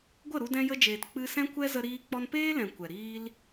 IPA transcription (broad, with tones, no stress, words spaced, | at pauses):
ɡʷə˦˨ɾu˧dɛ̃˧ jə˧d͡ʒeː˨t k͡pɨ˧ sɛ̃˦kʷɛ˦ zə˧ɾiː˧ k͡pɔ˧npeː˦lɛ̃˨ kʷɛ˨ɾiː˦l